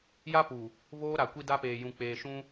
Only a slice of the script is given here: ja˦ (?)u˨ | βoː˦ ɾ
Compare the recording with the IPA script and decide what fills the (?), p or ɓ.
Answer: p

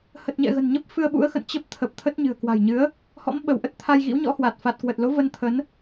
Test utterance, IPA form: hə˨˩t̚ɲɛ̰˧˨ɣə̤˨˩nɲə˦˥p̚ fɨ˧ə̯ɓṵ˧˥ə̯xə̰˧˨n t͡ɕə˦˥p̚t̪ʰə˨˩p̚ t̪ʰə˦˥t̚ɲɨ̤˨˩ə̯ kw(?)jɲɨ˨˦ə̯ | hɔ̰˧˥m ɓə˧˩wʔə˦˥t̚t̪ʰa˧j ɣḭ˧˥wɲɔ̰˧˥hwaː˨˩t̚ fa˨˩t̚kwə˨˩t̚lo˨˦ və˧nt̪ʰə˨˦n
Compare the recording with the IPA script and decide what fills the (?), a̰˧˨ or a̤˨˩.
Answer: a̤˨˩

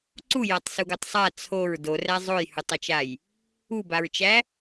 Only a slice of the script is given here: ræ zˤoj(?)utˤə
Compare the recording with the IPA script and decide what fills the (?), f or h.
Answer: h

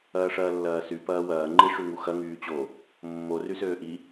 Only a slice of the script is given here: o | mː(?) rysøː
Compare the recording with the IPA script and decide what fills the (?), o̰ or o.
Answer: o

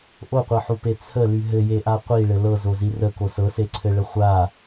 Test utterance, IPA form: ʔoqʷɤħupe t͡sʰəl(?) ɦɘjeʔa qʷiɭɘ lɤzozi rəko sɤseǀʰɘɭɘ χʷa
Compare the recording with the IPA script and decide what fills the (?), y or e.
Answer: y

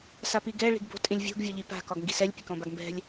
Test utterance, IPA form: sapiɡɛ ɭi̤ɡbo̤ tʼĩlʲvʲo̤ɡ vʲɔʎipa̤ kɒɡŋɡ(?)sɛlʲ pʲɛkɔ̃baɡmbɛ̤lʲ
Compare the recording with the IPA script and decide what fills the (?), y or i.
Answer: i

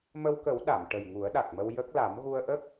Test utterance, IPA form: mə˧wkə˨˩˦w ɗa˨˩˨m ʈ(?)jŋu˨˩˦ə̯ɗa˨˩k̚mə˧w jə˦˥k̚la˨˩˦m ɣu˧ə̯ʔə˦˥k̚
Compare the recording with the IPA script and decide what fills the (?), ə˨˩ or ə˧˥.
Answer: ə˨˩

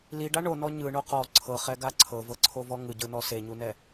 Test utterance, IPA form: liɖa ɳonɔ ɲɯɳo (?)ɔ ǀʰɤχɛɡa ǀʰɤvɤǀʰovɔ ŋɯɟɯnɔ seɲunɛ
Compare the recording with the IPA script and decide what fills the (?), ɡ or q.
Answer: q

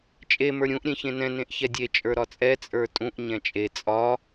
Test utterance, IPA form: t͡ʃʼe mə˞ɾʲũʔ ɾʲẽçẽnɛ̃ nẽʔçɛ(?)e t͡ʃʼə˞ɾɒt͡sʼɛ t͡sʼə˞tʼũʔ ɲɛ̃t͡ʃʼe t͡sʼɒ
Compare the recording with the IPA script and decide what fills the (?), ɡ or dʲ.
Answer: dʲ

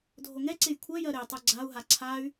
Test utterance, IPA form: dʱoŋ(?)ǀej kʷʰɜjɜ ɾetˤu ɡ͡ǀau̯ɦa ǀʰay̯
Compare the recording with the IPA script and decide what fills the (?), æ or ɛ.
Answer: ɛ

